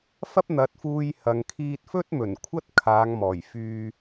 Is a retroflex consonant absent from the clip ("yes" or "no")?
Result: yes